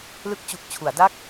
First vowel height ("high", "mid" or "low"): high